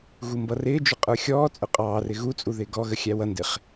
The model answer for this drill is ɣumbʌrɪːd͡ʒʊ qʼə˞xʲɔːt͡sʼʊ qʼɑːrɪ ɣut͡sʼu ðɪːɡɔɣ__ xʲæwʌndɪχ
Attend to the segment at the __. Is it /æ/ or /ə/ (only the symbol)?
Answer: ə